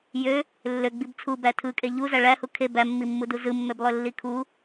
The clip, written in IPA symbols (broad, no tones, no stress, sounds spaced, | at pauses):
j ø | lː ø ɡ͡b i b t͡sʰ u b æ tʰ ɯ kʼ e ʎ u z æ ɭ æ h u kʰ e b æ mː i mː u d u z ɯ mː ø b lˠ ø lː i kʰ u